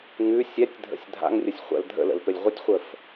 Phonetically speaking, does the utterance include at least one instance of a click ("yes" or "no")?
no